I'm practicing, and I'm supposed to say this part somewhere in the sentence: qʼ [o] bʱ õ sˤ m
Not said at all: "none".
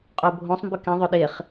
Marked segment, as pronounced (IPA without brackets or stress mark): o